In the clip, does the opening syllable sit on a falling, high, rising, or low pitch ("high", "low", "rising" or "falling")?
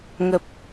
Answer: low